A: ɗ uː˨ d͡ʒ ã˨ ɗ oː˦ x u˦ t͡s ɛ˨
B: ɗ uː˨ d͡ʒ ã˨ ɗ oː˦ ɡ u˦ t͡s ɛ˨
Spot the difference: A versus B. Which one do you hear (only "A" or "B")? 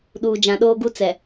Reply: B